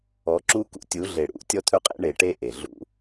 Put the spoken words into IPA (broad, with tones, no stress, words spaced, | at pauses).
ɔ˨˦ǁu˦kṵ˦ tʲu˨˦ɮe˨ ɽṵ˨˦ tʲɔ˦t̪ʰɵ˦qʼḛ˦ ɳe˨ʈe˦ ʔe˨ ɮṵ˦